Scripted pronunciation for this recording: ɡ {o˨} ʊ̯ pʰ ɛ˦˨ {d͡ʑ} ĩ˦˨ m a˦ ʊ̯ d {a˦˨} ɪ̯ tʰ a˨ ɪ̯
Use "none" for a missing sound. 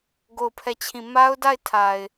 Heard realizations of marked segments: o˦˨, t͡ɕʰ, a˦˨

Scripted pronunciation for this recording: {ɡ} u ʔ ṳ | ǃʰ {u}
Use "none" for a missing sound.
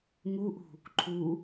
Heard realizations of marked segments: ŋ, u

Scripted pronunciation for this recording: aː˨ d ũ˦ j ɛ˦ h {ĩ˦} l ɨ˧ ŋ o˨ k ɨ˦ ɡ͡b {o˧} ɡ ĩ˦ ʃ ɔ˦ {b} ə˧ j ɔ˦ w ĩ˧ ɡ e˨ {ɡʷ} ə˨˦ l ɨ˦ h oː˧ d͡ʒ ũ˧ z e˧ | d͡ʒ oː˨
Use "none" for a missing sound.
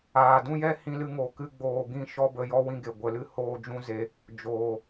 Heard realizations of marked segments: ĩ˧, oː˧, b, ɡʷ

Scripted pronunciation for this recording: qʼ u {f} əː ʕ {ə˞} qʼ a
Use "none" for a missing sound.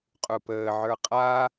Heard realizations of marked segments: p, ə˞

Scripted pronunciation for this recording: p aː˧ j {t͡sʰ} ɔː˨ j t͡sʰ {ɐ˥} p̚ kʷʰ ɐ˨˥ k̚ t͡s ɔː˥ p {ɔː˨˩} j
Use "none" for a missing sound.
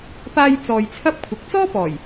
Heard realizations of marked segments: t͡s, ɐ˥, ɔː˨˩

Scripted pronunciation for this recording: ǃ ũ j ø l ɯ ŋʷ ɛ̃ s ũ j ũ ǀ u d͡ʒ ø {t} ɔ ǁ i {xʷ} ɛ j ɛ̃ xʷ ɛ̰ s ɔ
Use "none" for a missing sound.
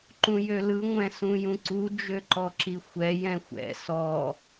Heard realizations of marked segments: ǃ, xʷ

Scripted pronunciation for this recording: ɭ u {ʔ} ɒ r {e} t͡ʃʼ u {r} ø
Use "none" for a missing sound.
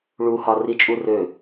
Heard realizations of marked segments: h, i, r

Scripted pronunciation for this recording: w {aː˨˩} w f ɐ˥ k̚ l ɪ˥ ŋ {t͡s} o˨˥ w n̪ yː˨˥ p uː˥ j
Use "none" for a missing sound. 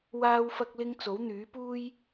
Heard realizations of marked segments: aː˥, t͡s

